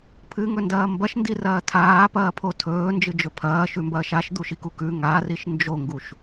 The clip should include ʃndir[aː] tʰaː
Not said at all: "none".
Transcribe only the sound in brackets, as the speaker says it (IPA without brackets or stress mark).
ɐː